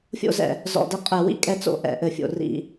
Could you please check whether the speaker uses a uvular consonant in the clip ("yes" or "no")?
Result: yes